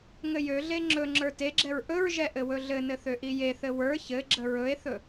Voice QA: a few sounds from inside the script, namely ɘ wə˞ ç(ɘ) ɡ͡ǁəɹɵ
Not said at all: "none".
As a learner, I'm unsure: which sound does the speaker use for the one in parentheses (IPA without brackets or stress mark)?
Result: ɘ